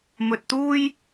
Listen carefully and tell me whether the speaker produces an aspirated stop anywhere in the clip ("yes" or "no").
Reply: no